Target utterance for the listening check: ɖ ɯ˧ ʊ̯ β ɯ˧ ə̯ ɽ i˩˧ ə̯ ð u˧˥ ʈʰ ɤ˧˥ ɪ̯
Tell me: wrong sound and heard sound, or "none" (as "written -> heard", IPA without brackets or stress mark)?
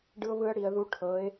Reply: none